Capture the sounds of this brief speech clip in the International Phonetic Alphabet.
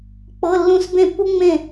k͡pɤ˧˥˧lːũ˥˨s bẽ˥˨pːu˥ŋ͡mẽ˥˨

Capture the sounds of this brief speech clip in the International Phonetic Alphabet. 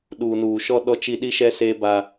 ɗuː˨nuː˨ʃɔ˦ ɗɔ˦t͡ʃi˦ ɗi˦ʃɛ˦seː˦ ba˦

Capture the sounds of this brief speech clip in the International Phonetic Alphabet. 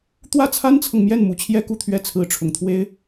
t̪wä˥˩t͡sʰa˥nt͡sʰɤ˨ŋ mjɛ˥˩nmu˧˥t͡ɕʰjɛ˥ ku˥˧t̪ʰɥɛ˥˩ t͡sʰɹ̩˧˥ʈ͡ʂʰʊ˨˩ŋt̪ʰwe˥ɪ̯

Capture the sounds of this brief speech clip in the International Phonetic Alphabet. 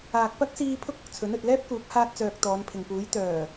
aː˨k̚pɐ˥k̚siː˧ pʰʊ˥k̚ʊ˨k̚t͡sʰɵ˨˥n ɵ˨t̚lɛː˥p̚ kuː˨˥k̚ haː˧t̚ t͡sœː˧k̚t̪ɔː˨˧npʰɪ˨ŋpuː˨˥j t̪œː˨˩

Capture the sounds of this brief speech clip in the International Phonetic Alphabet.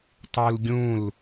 tˤulɡʲũl

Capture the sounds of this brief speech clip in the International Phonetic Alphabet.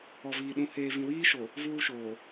ɔ˨viː˨ɗũ˨ heː˨vĩ˨ wiː˦ʃo˨ | vuː˦ʃoː˨

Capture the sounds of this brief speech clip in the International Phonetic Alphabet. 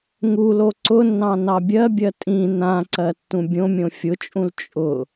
ŋulo ǀʊnːɑ̃ nɑbʲɜbʲɜ tʼĩ nãǀɜ tːũbʲõmʲõ fʲʊt͡ʃʼũl t͡ʃʼʊ

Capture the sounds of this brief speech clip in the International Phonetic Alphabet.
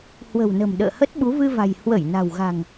hwə̤˨˩wnə̤˨˩m ɗə̰ː˧˨hə˦˥t̚ɓu˨˦ vɨ˧va̤˨˩j hwə˧˩j na̤˨˩wɣa̤˨˩ŋ

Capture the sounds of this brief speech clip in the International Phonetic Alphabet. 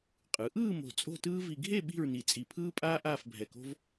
qʼɯ˩˧ʔɯː˥˧ mo̤˧˩t͡sʼo̤˥˧tɯː˥ vi˧ɡʱe˥˧ ɓi̤˥˧ɹni˧˩ t͡sʼi˧˩pʰɯː˥pʼaː˥ ʔaː˥˧fbʱɛ˧˩ko̤˥v

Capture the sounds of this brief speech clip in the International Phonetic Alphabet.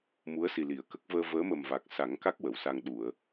mu˧˥ə̯si˨˩li˨˩˨ə̯ kə˦˥k̚ vəː˧vəː˧˥mə˨˩mva˨˩k̚ sa˨˩˦ŋka˦˥k̚ wə˨˩˨wsa˧ŋ ɗu˨˩˨ə̯

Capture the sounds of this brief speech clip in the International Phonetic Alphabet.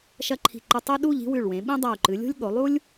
ʃɐ˥˧ǃʰi̤˧˩ǃɨ˧ tˤe˥ ɗu˥˧ʎ i̤˥wʉ˧˩ɭwẽ˩˧ ɓĩ˥ dˤa˧˩u̯ǃɨ˩˧ lʲo̤˥lʲɠo˩˧lˠu˥lʲ

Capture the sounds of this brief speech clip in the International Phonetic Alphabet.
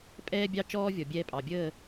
pʼɛː˦bʲɑ˦ t͡ʃɔː˦vʲɔ˨bʲɛː˧pʼɑ˨ bʲəː˦˨

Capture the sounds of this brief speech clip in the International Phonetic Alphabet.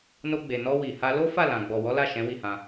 no˧ɡ͡be˨ nɔ˧ wi˨ha˧ lo˦fa˦˨lã˨ ɡ͡bɔ˨wɔ˨˦la˦˨ ʃɛ̃˨˦wi˦˨hã˧

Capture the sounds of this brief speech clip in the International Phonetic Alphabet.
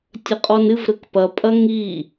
tʲɐqʼɔnɨv ɾɘkpɐpʼɐ ŋi

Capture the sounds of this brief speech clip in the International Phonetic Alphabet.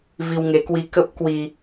vi˧wŋe˨˦kwi˧ kə˦˥p̚ kwi˧

